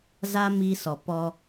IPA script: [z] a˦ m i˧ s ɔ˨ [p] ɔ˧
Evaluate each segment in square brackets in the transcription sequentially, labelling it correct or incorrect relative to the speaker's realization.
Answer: correct, correct

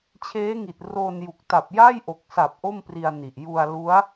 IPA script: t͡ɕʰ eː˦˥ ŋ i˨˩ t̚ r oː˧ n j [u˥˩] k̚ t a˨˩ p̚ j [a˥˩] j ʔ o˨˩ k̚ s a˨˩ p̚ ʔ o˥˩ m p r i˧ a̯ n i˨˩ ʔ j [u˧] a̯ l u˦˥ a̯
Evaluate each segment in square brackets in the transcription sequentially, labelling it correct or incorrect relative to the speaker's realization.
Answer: incorrect: u˨˩, correct, correct

